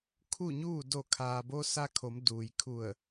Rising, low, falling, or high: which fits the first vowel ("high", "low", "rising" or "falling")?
falling